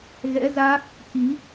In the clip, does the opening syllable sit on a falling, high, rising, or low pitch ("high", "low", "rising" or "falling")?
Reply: rising